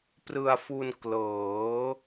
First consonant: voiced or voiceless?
voiceless